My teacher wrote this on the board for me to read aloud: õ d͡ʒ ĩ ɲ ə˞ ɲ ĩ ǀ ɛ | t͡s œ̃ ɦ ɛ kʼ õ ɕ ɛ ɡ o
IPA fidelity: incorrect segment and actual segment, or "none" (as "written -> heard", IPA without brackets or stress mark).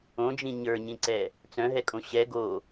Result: none